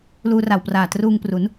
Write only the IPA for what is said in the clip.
luː˧ra˨˩wpraː˨˩ truː˧ŋpru˩˦n

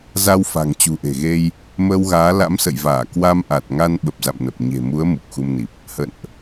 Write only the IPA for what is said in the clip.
za˧wfa̤˨˩ŋ t͡ɕṳ˨˩ʔe̤˨˩ɣe˧j | məː˧wɣaː˨˦ la̰˧˥msə̰˧˨jvaː˧˩ kwa˧mʔa˨˩t̚ŋa˧n ɓə˨˩p̚za̰˧˨mnə˨˩p̚ ɲe̤˨˩mu˨˦ə̯ mu˨˩k̚xu˧mni˨˩p̚ | hə̰˧˨nʔ

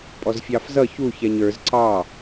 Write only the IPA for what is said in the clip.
pʼɔzfʲɑfzʌ çuçɛɲ ə˞z ǀɑ

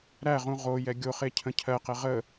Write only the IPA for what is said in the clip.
ɾæʁũ ʁojɛ ɡʲoχe cʰə̃cʰɜqɛ ʁə

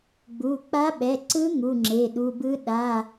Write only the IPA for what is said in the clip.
ɡ͡bu˩˧˩ k͡pa˧˥ɓɛ˩˧˩ ǀɯ˧˥ ŋu˩˧˩ŋ͡ǁe˩˧˩ɗu˩˧˩bɯ˧˥ ɗa˩˧˩

